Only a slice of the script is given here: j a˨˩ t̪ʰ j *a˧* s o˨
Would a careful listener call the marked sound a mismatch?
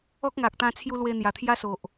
yes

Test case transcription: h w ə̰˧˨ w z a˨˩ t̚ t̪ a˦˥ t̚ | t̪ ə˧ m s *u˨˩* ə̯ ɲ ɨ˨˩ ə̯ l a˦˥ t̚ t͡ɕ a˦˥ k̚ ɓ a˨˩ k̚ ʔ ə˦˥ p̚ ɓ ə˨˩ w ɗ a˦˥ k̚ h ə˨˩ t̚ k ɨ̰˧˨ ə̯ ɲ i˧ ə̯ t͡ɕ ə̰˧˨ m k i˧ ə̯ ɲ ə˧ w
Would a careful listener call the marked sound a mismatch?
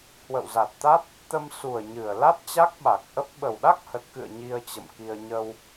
no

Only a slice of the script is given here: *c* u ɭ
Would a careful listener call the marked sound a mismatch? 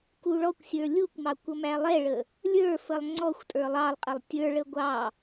yes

